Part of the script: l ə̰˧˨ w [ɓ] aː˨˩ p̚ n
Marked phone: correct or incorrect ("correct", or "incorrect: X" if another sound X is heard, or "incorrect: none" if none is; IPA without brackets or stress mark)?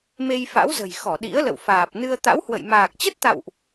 incorrect: f